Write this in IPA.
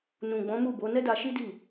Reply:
n ũ˨ ɡ͡b ɔ̃˨˦ m u˦˨ b o˨˦ n ɛ˦ d a˧ ʃ i˦ d i˦˨

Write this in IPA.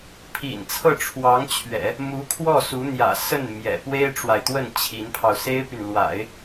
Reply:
pʰ ḭ˨˩ n t͡sʰ ɤ˥˩ ʈ͡ʂʰ w ɑ˧˥ ŋ t͡ɕʰ ɥ ɛ̰˨˩˦ | m u˧˥ kʰ w ɔ˥˩ s u˧˥ n̪ j ä̰˨˩ s ə˥˩ n m j ɛ̰˨˩ p w e˥ ɪ̯ ʈ͡ʂ w a˨ ɪ̯ t̪ w ə˥˩ n t͡ɕʰ i˧˥ n pʰ ɑ˧ ʊ̯ s e˥ ɪ̯ p y˨ n l w a̰˨˩˦ ɪ̯

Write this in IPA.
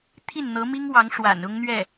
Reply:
t̪ʰ i˥˩ n n̪ ɤ˧˥ m i˥ ŋ w ɑ˧˥ ŋ ʂ w a̰˨˩ n ʊ˥ ŋ n̪ ɥ ɛ˥˩

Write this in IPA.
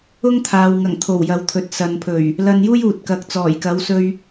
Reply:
ʊ˥ ŋ t̪ʰ aː˨ w ŋ ɐ˨˩ ŋ t̪ʰ o˨˩ w j ɐ˨˧ w t̪ʰ ɵ˨ t̚ s ɐ˨ n pʰ ɵ˨˩ ɥ | l ɐ˧ n j uː˥ j uː˨ t̚ k ɐ˨ k̚ t͡s ɔː˨˩ j k ɐ˨˥ w s ɵ˧ ɥ

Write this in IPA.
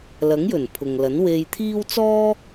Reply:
l ɐ˨˥ ŋ j ɵ˨˩ n pʰ ʊ˨ ŋ l ɐ˨˥ n w e˧ j t̪ʰ iː˥ w t͡s ɔː˥

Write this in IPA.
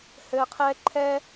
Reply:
h ɘ˨ qʰ ɛ˦ ǃʰ ɛ˦

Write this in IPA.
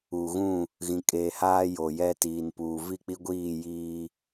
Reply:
u˨ ɣ ũ˦˨ | ɣ ĩ˨ kʼ eː˨ h aː˦ j o˨ j ɛ˦ t iː˨ n p uː˨ v i˦˨ k͡p i˦ ɡʷ iː˦˨ j iː˦

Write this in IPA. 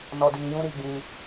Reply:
n ɔ˧ d iː˧ j ũ˦ ɾ i˧ ɡ͡b ĩ˧

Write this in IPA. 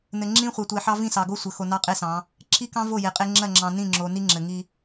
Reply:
n ɘ˨ ŋ͡ǁ ĩ˦ χʷ ɑ˨ tʷ e˨ ħ ɑ˦ v ĩ˦˨ s ɑ˨ ɡ o˦ sʷ ə˨ x o˨ n ɑ˦ qʼ e˦ s ɑ̃˨˦ | ǁ i˦ k ɑ̃˦ v o˦˨ j e˨ qʼ e˦ ŋ͡ǁ ɜ˦˨ ŋ͡ǁ ɑ̃˨ n ĩ˦˨ ŋ͡ǁ o˨ n i˦ ŋ͡ǁ ɘ˨ ŋ i˦

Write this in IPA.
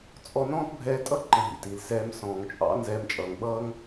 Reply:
t͡sʼ ɔ˧ n ɔ̃ː˦ t bʱ ɛː˧ tʼ ʌ˦ ǃ ə̃˨ ɦ ḭ˨ t i˨ l s ɛː˧ m s ɔ̃ː˨ ŋ t͡ʃʼ ɑ̰˨˦ n z ɛː˧ m t͡ʃʼ ʌː˨ ŋ ɓ ʌː˦ ŋ

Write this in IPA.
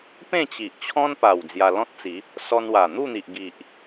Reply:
p ẽ˥˧ t͡ɕ i˨ ʔ t͡ɕʰ ɔ̃˦ n p a˨˩ w d͡z j a˧ l ɔ̃˦ t̚ t͡s i˨˦ | s ɔ˧ n w a˨˩ n̪ u˥˧ n̪ i˨ ʔ ɡ i˨ ʔ

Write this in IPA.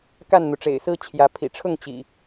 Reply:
k a˥˨ n n̪ u˩ ʈ͡ʂ ḛ˨˩ ɪ̯ s ɹ̩˦ t͡ɕʰ j ä˨˦ pʰ ḭ˨˩ ʈ͡ʂʰ ʊ˥˨ ŋ t͡ɕ ḭ˨˩

